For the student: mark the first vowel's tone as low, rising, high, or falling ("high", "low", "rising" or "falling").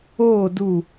falling